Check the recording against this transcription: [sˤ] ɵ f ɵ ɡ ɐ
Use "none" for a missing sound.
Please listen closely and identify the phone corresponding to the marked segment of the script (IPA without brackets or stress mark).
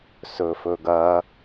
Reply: s